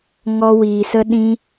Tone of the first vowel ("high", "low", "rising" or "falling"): high